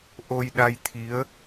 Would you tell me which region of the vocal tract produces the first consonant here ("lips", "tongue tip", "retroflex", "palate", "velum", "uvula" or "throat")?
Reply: throat